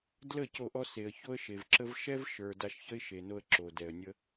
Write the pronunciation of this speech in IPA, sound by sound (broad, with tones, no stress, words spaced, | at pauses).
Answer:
dlə˦˨ co˦˨ʔɔ˦ se˨ə̯ ço˦ə̯ʃe˨vǁə˦v ʃɛ˦vʃə˞˨ da˧ʃçə˦ɪ̯ ʃe˨no˧ə̯ ǁo˨dɛ˨ə̯nʲə˦